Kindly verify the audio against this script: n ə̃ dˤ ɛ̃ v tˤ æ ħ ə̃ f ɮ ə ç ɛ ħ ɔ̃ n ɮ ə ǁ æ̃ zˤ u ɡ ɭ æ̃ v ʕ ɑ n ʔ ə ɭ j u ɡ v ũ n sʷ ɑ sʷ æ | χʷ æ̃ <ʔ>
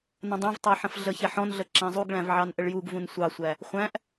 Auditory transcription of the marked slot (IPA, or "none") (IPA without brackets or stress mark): ʔ